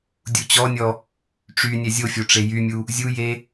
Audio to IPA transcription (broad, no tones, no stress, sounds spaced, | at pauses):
dʲ u t͡ɕ ɔ nʲ ɔ | ʈ͡ʂ y nʲ ɛ zʲ o fʲ o ʈ͡ʂ e j y mʲ u | zʲ u j e